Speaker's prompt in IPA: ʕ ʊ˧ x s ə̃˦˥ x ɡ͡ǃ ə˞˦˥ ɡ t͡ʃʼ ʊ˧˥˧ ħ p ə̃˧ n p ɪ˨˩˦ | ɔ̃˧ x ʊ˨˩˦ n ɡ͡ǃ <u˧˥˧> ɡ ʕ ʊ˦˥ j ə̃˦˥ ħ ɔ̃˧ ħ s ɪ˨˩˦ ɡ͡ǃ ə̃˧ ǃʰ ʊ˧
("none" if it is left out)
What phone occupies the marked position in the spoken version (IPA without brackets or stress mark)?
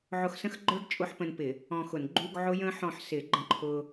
u˧˥˧